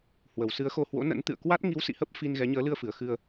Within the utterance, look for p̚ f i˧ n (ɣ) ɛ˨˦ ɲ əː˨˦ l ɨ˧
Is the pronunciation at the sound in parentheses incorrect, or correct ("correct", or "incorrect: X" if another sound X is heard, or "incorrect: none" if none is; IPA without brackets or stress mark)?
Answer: correct